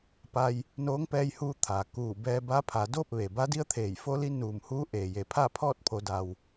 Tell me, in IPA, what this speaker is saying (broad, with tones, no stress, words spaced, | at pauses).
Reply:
pa˧j | noː˧˥ŋpɛː˧jhuː˧ t̪ʰa˩ kuː˧˩ bɛː˧ba˧˥pʰa˩˧ doː˥˨p̚ʋe˩ ba˧˥di˧˥ə̯ t̪ʰeː˧˩j fo˧li˧ nuː˧˩mhuː˧˥ ʔeː˩je˩ pʰa˥˨pʰɔː˥˨t̚pʰo˩˧ da˩w